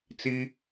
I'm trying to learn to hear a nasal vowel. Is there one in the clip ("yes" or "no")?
no